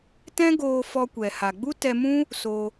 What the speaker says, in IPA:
tɛ̃˦ ɡoː˧fɔ˧kʷɛ˨ ha˨ɡ͡bu˦tɛ˧mũ˦ | so˧

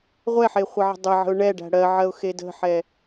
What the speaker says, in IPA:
ʁʷɛħe χʷɜʕə̤dˤɛʕə̤ʊ̯ ɳɛɖæ̤ ɽɜ ʕɜʊ̯xedə̤ħɛ

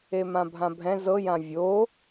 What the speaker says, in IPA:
emãbʱãbʱɛ̃ zɤ jãvʲo

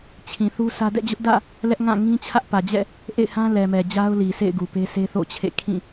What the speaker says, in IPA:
t͡ɕʰĩ˨θu˦sä˦ dɛ̰˦˨d͡ʑʊ˦ʔdä̰˦˨ | lɛ˦ʔŋã˦˨ ŋĩ˦t͡ɕʰä˦ʔpä˨d͡ʑɛ̰˦˨ | ʔḛ˦˨ɪ̯hã˦lɛ˨ mɛ˨d͡ʑa˦ʊ̯ li˨sʰḛ˦˨ɪ̯ɡu˨pe˦ se˦θo̰˦˨t͡ɕʰḛ˦˨ kʰĩ˦˨

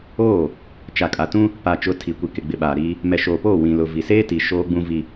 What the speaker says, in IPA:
oː˦˨ | t͡ʃa˨kʼa˨tũ˦ | pa˨t͡ʃʊ˨˦ tʰi˨kʷi˨kɪ˨ ɡ͡bɪ˨ɓaː˨ɾiː˦ | mɛ˨ʃoː˨poː˦˨ wĩ˨lʊ˨ vi˨seː˦ti˨ ʃoː˦ɡ͡bũ˦ vi˦

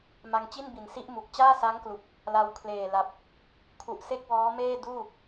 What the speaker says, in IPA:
ma˧ŋ t͡ɕi˥˩nbi˨˩nsi˦˥ʔmu˨˩k̚ t͡ɕaː˥˩sa˦˥ŋklu˨˩k̚ | la˧wkʰleː˨˩la˨˩p̚ | kʰu˨˩ʔse˥˩k̚wɔː˦˥ meː˥˩duː˥˩

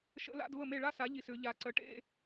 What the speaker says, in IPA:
ʃə̰˧˥˧la̰˧˥˧dvə˥˩me˥˩ ɭa˥sa˩˥ʎi˨˩s ʏ˩˧ ʎa˨˩ǀə˩˥ʈḛ˧˥˧

